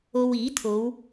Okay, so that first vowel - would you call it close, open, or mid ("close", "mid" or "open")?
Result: mid